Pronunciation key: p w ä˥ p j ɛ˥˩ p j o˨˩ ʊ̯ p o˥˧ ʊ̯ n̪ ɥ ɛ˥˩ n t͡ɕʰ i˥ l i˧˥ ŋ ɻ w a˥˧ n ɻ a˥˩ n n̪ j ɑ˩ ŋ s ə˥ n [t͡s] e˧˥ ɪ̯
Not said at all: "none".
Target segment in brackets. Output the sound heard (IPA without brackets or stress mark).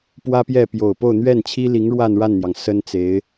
t͡s